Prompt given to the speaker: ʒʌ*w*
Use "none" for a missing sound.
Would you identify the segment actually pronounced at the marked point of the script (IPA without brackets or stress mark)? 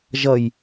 j